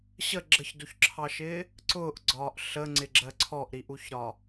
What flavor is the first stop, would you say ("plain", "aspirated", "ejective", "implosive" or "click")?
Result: click